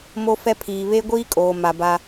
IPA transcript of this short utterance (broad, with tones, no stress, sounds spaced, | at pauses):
m o˦ f ɛ˦ pʰ iː˨ β e˦ ɡʷ iː˦ kʼ oː˨ m a˨ b a˦